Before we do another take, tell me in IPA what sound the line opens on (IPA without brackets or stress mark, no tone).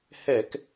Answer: h